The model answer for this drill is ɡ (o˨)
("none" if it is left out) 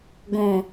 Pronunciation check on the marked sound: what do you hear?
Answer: õ˨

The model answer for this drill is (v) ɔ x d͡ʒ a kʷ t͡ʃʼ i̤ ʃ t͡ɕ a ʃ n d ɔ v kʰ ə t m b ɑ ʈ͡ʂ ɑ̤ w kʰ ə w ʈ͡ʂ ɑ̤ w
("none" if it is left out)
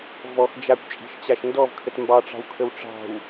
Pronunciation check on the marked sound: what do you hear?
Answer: v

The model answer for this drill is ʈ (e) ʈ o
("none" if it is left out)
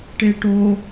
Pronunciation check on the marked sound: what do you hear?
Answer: e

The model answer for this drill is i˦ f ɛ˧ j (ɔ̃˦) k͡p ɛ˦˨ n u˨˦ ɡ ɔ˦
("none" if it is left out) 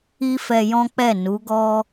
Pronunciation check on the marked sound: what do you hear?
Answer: ɔ̃˦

